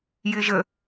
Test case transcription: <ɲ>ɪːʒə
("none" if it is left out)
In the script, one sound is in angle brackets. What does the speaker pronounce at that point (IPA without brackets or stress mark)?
j